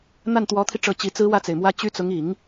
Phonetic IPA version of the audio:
n̪ a˥˩ n t̪ w ɔ˧˥ t̪ʰ i˧ ʈ͡ʂ ɤ˧˥ t͡ɕ i˧˥ t͡s ɹ̩˥ w ä˥˩ t͡s e˩ ɪ̯ m w ä˥ t͡ɕ y˥ t͡s ʊ˧˥ ŋ i˨˩˦ ŋ

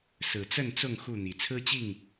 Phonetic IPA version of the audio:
s ɹ̩˨˩ t͡s ə˥˨ n t͡s ʊ˥˨ ŋ x u˥˨ n̪ i˨˩ t͡sʰ ɹ̩˦ t͡ɕ i˥˨ ŋ

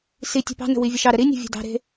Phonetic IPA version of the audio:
s i tʲ ɛ̤ p ɑ̤ n ə̤ w i vʲ e ʃ ɑ ɾ ə ɾ i nʲ e̤ vʲ e̤ d ɑ̤ ɾ e̤

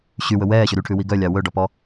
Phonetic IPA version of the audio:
ɕ y w ɵ w ɛː ɕ ø ɾ y ʈʰ ʉ w i ɡ œ lʲ ɑ w ɵ ɖ ɔ p ɔ

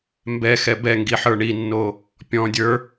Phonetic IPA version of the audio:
m b ɛ x ɛ b ɛ ŋ ɡ i ħ ə˞ ɳ i nː o | pʲ ɔ̃ dʲ ə˞

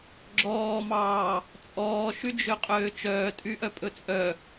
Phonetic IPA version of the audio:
ɡ͡ǁ ɔː m ɑː | t͡sʼ ɔː ʃ y d͡ʒ ø qʼ øː t͡ʃ œː tʼ y ʔ œ pʼ ɵ t͡sʼ œ

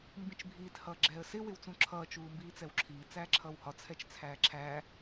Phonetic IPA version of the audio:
m b ĩ t͡ʃ bʱ iː t h ʌː ɡ͡ǁ ɛː ə̯ s ɪ w ɪ w t͡s ũ ǁʰ ʌː t͡ʃ uː m b iː t͡s ɛ w ǁʰ iː t͡s æː ǁʰ ʌː w h ɒ t͡sʰ ɛ t͡ʃ t͡sʰ æː ǁʰ æ

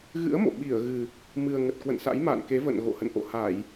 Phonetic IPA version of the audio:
ɣ ɨ̰˧˥ ə̯ m o̰˧˨ ɓ i˧˩ ə̯ ɣ ɨ˨˩ | m ɨ˨˩ ə̯ ŋ ə˨˩ t̚ k w ə̰˧˨ n s a̰˧˥ j m a̰˧˨ n k e˨˦ v ə̰˧˨ n ɣ o̰˧˨ h ə̰˧˨ n ʔ o̰˧˨ h a˧˩˨ j

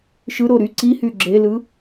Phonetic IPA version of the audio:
ʃ ɯ ɾ o ɾ y ǀ i h y ɡ͡ǁ e l ɯ

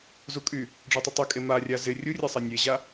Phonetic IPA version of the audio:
z u kʼ y | ɖ͡ʐ ɔ tˤ u tˤ y kʼ e m a rʲ a z ɪ rʲ u rʲ e sˤ a nʲ e ʑ a

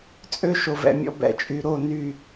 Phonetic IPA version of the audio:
t͡sʼ ø˦ ʃ o˨ v ɛ̰˨ mʲ ɔ̰˧ b ɛ̰˨ t͡ʃʼ y˨ ɾ o˦˨ n y˦˨

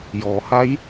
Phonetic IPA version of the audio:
j ɔː˩˧ h a˧˥ j

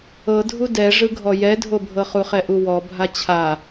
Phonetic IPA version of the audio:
ɤ dʱ u d ɛ ʐ ɯ ɡʱ ɔ j ɛ dʱ o bʱ ɤ χ u χ ɛ ʔ u w ɔ bʱ a t͡ɕʰ a

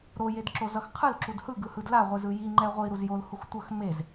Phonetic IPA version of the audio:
ɾ o j e d ǁ o z ʌ x qʰ ɯ l ǁ u d h ɯ ɡ ɯ h ɯ d l a ʁʷ i z ɯ j i ŋ͡ǃ ɛ ʁʷ i ɾ u z j o l h u x tʷ ʌ x m e z

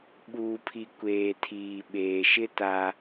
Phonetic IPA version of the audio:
ɓ uː˨ pʰ i˨ kʷ eː˨ tʰ iː˨ ɓ eː˨ ʃ ɪ˦ t a˦

